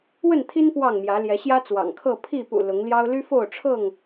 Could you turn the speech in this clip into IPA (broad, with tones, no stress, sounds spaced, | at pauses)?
w ə˥˨ n t̪ʰ i˦ n p w ɑ˥˨ ŋ m j ä˨˦ l j ɛ˨˦ ɕ j ä˦ t͡s w ɑ̰˨˩ ŋ kʰ ɤ˥˨ pʰ i˥˨ p ṵ˨˩ l ʊ˨˦ ŋ l j ɑ˦ ʊ̯ l y˦ f o˥˨ ʊ̯ ʈ͡ʂʰ ɤ˥˨ ŋ